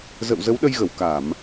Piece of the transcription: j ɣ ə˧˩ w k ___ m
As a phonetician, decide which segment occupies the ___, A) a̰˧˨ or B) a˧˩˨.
B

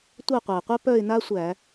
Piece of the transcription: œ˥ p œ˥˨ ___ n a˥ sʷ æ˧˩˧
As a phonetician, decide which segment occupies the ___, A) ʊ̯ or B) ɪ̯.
B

